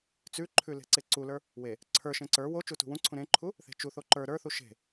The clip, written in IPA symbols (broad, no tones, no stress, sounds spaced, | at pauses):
t͡s ʉ ǃʰ ʉ l e̤ ǀ e ǀ u l ə˞ | w e | ǀʰ ə˞ ʃ ẽ ǀ ə˞ w o t͡ʃ u t ṳ w ũ ǀʰ ũ ɾ ẽ ǃʰ u | θ e̤ t͡ʃ u θ o ǃ ə˞ ɾ ə˞ θ u ʃ e̤